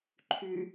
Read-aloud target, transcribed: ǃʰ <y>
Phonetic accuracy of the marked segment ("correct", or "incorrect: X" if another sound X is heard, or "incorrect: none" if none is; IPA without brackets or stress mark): correct